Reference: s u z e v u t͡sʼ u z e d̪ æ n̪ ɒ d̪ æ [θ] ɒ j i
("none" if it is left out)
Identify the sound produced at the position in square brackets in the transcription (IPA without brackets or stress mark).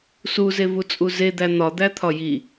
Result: t̪ʰ